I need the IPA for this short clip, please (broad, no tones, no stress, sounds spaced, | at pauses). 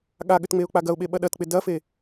ɠ a ɠ ʏ t ŋ͡m e ʊ̯ k͡p a ɡ ɐ ʊ̯ ɓ e ɓ ɐ ɗ ɐ t k͡p ɪ d ɐ f e